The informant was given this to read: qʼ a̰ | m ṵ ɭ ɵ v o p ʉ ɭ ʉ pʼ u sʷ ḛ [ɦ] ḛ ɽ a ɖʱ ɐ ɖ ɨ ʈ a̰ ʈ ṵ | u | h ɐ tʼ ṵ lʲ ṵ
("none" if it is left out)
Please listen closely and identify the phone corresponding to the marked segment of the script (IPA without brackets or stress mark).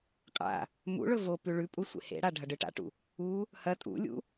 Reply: h